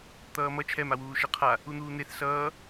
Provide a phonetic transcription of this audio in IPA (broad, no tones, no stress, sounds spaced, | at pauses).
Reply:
t̪ ʌː m ʌ t͡ʃʰ ɛ m a w uː ʃ ɛ qʰ a | u n̪ uː n̪ e θ s ʌː